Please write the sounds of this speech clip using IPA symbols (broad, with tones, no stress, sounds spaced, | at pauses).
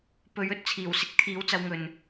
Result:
p ɵ˨˥ ɥ ɵ˧ t̚ t͡sʰ iː˨˩ w s ɪ˧ k̚ t̪ʰ iː˨˥ w t͡s ɐ˧ w ŋ ɵ˨ n